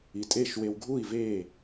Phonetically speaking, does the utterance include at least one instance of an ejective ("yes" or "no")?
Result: yes